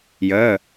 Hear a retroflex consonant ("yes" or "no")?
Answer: no